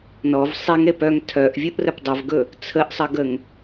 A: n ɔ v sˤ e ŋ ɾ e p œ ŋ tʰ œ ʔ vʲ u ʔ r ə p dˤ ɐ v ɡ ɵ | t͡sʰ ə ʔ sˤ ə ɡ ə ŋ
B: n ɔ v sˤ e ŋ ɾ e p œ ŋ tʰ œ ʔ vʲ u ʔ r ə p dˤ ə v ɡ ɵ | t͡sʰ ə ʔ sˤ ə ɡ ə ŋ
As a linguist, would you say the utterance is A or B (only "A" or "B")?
A